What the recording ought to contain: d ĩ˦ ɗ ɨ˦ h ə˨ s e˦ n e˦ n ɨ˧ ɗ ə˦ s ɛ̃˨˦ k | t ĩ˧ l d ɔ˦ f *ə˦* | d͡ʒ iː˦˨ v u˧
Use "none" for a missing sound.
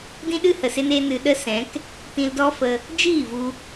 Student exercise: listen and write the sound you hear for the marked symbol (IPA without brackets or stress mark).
ə˧